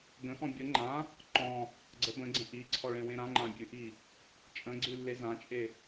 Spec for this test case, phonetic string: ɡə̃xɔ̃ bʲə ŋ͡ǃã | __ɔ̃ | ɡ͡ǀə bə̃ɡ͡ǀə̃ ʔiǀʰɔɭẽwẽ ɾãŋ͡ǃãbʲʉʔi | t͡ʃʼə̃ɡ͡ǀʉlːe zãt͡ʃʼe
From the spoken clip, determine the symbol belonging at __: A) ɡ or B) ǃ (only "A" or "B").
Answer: B